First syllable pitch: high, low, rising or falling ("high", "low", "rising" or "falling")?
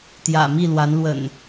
low